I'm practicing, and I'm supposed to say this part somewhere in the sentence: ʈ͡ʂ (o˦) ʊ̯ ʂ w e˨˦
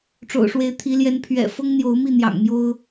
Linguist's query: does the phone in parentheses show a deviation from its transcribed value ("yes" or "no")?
yes